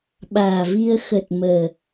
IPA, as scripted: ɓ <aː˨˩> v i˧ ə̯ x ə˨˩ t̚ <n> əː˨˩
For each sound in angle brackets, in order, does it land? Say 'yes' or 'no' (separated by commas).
yes, no